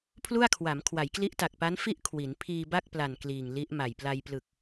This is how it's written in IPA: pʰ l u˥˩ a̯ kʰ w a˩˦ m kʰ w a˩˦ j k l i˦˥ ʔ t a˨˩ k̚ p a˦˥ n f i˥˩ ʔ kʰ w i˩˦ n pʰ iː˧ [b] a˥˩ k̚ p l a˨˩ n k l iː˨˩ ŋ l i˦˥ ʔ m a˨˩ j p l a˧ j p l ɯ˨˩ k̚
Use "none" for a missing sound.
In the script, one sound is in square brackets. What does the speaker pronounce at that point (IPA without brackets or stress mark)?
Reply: b